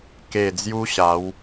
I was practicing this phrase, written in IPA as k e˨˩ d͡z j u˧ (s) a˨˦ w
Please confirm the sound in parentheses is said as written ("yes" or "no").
no